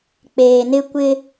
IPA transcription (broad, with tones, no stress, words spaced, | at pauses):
k͡peː˨ nɪ˦ kʷɪ˦